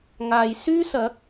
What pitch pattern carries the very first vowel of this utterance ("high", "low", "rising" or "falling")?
low